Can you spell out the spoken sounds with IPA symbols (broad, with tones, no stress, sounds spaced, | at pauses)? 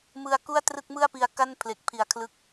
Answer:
m ɯ˧ a̯ k u˥˩ a̯ t r ɯ˥˩ k̚ m ɯ˥˩ a̯ p i˧ a̯ k a˥˩ n pʰ l e˨˩ k̚ pʰ i˨˩ a̯ kʰ l ɯ˦˥ k̚